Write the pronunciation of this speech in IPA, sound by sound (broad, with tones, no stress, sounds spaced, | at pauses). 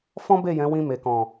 f ɔ̃˦ b e˦˨ j ɛ̃˨˦ w ĩ˧ m e˨ k ɔ̃˨